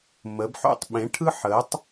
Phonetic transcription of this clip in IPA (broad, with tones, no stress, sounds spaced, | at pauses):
m ə˨˥ b ħ o̰˥˨ tˤ ɓ ẽ˨˥ ʈʰ ɯ˥ ħ əː˨˥ tˤ